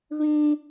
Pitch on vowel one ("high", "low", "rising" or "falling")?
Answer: high